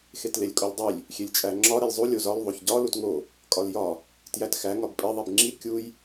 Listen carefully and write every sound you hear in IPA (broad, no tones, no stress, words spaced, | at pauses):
xetlelʲkʼolʲdˤilʲ | xʲelʲt͡ʃʼæŋ͡ǁɒ ɾilʲzˤu lʲozɒl ðˤoçɟɒ lutŋo | kʼɒljɒ | tjætxæ ŋɒbpʼi ðˤibŋ͡ǁi kʲuj